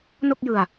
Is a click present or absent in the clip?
absent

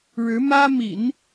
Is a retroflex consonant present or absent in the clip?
present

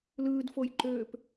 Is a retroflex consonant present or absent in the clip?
absent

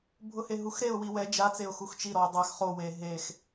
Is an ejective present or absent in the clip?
absent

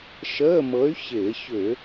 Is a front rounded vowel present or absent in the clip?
present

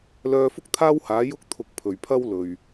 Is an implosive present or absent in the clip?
absent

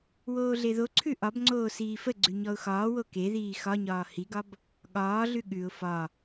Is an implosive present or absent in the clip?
present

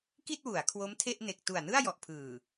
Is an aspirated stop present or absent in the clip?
present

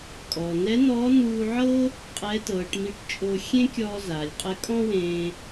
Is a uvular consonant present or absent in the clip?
present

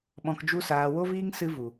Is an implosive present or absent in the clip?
present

